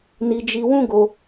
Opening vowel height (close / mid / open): close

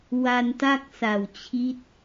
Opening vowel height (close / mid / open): open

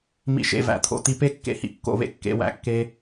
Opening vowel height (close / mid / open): close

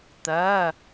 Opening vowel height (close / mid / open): mid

